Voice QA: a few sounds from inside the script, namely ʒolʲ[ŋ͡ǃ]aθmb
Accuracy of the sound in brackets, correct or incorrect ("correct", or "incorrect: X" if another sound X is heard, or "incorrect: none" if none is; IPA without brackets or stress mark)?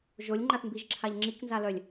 correct